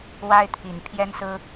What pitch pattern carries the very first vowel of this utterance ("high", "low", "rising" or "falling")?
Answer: high